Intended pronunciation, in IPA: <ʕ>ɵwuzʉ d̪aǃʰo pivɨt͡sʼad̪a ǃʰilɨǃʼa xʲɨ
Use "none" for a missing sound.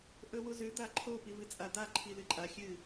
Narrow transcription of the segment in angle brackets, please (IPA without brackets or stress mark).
ʔ